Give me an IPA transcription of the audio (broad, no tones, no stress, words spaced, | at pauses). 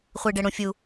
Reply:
χʷiɖɛɽũfʲu